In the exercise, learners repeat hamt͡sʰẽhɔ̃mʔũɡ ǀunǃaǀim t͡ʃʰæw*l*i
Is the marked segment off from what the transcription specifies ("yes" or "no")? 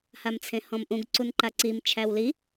no